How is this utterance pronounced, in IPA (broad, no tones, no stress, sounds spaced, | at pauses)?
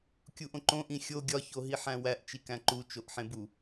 kʲ u ʔ õ ǃ õ ʔ ĩ xʲ o ɡʲ ɒ ç o ɦ i ħ æ̃ w æ ʔ t͡ʃ i k æ̃ ǃ u t͡ʃ o ʔ ħ ẽ b u